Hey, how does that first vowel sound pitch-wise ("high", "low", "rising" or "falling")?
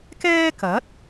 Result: high